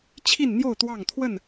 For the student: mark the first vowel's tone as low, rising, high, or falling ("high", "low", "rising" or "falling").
falling